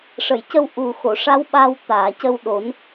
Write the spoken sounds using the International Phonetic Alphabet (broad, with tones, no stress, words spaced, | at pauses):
ʂə˨˩˨jcə˧w ʔu˨˩ xo˨˩˨ʂa˧˥w ɓa˧w t̪aː˨˩˨cə˧wɗo˨˩˦n